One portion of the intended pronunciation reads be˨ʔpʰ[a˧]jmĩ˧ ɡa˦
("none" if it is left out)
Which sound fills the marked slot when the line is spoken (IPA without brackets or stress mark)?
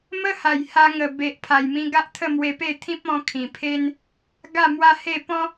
a˨˩